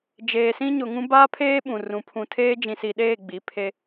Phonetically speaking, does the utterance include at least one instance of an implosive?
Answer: yes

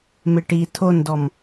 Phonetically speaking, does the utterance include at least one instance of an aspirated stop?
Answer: yes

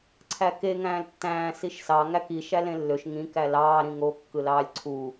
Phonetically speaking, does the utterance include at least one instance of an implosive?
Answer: no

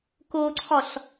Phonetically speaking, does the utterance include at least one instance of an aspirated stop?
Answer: yes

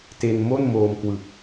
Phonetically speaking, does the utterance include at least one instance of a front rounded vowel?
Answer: no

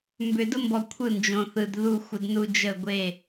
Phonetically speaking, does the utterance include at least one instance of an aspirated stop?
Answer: yes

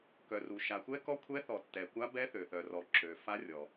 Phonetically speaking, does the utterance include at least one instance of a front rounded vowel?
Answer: yes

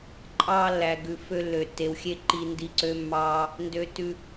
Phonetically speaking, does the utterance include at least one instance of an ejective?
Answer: yes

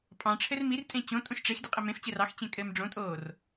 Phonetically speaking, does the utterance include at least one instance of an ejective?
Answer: yes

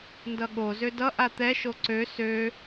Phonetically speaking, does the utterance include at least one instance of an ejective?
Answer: no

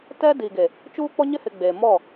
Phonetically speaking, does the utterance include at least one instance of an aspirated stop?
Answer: no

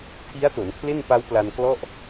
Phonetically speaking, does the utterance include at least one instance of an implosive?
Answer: no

